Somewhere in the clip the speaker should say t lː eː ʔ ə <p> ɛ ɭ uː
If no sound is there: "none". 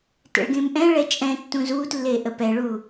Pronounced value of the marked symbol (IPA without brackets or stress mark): p